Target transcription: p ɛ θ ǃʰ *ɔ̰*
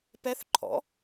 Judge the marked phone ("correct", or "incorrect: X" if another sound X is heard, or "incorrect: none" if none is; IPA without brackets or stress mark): correct